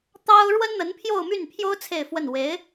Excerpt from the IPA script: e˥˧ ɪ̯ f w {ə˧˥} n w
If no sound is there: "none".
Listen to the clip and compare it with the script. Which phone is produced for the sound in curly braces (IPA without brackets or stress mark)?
ə˥˩